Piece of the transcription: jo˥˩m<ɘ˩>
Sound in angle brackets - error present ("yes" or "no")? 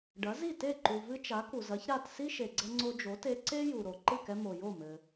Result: no